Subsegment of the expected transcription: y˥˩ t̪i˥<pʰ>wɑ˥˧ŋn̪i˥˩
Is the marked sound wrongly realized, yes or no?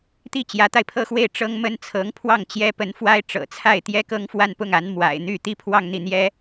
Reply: no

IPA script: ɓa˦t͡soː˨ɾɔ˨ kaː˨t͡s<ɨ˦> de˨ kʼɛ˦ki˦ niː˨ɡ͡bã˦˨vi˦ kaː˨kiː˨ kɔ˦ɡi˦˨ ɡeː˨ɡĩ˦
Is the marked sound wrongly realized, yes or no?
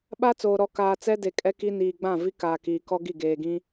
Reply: yes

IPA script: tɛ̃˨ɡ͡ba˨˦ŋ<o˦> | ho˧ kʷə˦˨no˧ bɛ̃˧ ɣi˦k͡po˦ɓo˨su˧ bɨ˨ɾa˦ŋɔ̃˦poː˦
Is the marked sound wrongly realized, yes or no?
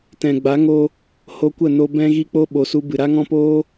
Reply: yes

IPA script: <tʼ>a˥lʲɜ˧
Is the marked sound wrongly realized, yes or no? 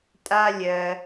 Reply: no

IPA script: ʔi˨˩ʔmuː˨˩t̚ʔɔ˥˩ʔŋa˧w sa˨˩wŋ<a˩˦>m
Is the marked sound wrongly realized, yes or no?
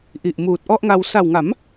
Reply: no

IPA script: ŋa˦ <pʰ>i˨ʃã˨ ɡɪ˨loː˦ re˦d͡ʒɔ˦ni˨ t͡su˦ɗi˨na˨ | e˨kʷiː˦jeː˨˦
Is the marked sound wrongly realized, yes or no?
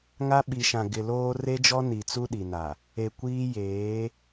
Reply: yes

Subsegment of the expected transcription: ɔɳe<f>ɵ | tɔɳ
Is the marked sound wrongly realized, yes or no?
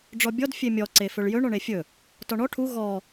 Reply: yes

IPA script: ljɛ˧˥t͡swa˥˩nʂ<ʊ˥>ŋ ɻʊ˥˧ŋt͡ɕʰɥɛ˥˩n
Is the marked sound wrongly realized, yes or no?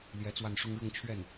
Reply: no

